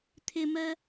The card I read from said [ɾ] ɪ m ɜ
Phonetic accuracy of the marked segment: incorrect: t̪ʰ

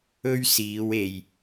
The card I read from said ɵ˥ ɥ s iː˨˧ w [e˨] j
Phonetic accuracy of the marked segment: correct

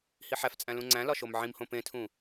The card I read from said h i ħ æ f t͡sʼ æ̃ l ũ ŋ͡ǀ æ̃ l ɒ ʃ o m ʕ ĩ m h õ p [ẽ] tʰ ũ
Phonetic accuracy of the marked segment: correct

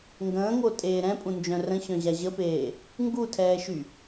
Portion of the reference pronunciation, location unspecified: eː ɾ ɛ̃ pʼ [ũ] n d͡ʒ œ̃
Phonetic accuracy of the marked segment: correct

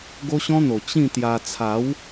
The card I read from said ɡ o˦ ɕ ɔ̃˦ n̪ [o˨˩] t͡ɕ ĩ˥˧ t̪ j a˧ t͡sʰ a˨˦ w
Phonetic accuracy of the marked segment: correct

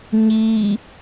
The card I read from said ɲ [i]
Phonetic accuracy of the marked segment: correct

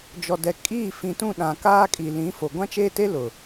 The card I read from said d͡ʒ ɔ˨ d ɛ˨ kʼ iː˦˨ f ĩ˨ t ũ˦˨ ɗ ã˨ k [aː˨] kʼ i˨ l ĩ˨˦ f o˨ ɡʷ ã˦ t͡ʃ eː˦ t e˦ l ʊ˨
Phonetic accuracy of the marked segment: incorrect: aː˦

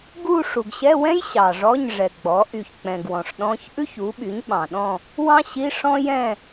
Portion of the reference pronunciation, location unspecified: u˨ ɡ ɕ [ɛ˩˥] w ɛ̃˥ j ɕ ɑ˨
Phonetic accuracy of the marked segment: incorrect: ɛ˧˥˧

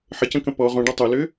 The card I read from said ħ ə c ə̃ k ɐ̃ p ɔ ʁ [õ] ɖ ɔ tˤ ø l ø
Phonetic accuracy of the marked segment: correct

